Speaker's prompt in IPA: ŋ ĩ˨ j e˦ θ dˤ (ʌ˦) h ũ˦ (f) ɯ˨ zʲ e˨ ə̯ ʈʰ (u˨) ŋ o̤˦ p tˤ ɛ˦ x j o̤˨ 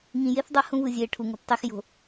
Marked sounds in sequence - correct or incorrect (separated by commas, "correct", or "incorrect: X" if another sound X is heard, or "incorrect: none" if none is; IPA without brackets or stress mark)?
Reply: correct, incorrect: v, correct